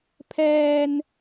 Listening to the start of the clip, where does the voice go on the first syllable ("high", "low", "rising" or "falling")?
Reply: high